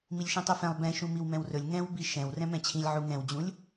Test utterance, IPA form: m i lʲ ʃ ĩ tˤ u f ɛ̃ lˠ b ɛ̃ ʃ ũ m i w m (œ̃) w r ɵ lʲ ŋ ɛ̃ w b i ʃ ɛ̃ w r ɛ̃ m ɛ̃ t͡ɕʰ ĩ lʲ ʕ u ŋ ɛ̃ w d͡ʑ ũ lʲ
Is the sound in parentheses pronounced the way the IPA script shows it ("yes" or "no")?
no